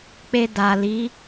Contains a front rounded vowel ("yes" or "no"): no